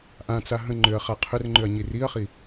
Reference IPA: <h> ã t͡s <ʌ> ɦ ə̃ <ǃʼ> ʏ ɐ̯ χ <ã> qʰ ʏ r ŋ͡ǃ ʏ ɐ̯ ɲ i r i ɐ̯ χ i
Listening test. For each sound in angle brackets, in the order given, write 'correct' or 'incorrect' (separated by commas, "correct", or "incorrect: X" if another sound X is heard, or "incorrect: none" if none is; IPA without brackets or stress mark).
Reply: incorrect: ʔ, incorrect: a, incorrect: ŋ͡ǃ, incorrect: a